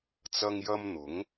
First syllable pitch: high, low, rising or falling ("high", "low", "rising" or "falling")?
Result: high